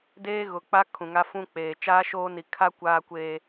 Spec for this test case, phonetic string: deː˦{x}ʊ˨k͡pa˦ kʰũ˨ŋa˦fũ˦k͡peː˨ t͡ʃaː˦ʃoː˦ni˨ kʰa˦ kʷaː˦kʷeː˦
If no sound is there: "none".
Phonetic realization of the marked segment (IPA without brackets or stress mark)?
ɣ